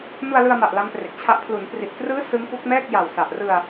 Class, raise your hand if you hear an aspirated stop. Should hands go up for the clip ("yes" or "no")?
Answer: yes